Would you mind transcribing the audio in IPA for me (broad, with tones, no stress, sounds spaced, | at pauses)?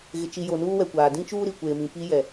ɣ ɪ˨ t͡ʃ i˨ j o˨ n uː˦ w ɛ˨ kʷ aː˨ d ĩ˦ t͡ʃ uː˦ ɾ i˨ kʷ eː˨ m ĩ˨ p i˦ j ɛ˨